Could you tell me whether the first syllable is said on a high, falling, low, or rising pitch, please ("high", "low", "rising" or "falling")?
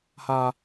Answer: low